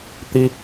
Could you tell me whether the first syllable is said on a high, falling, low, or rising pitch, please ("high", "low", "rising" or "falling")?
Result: high